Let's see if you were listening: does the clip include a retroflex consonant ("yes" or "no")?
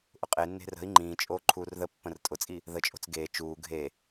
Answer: no